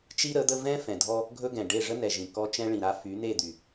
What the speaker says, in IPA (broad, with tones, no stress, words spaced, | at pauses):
t͡ʃi˦ɾə˨˦d̪ə˦ vɛ̃˦ fɛ̃˨dʱɔ˦ | ɡʱɵ˦ɡɛ̃˨ ɖe˦˨ ʐə˦nɛ˨ʒĩ˨ kɔ˦ t͡ʃɛ̃˦ɭĩ˨ɾa˦ fy˨˦n̪e˦˨d̪y˨